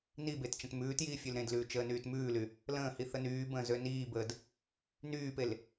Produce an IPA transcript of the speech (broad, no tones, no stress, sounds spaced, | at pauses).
n i b e t t͡ʃ ə̃ t m ʉː t j iː fʲ ø l ɾ ẽ d l ʉː t͡ʃ əː n yː t m ʉː l y | l ə̃ː h i θ ə n yː b ə̃ː z ø n iː b əː d | n yː p e l